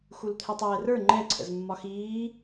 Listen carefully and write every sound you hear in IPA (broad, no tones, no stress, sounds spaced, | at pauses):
x u l t̪ʰ ɛ tˤ ɛː r ə˞ ŋ͡ǃ ɛ ǀʰ ə̰ z mː ɒ x iː